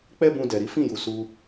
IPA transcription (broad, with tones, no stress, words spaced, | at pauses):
k͡pɛ˦bũ˧dɛ˨ɾi˨˦ fĩ˦˨ju˨su˧